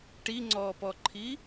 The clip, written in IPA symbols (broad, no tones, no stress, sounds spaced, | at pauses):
ʈ i ŋ͡ǀ ɔː p ɔ ǃʰ i